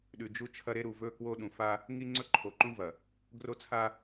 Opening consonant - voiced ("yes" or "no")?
yes